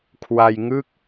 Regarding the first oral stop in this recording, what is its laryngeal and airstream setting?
aspirated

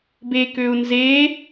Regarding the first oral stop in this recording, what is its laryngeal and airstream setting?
plain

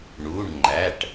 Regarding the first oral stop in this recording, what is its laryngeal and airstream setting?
click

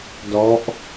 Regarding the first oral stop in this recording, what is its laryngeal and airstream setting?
plain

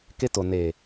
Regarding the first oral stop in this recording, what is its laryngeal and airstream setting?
plain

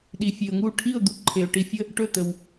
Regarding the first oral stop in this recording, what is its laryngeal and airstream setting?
implosive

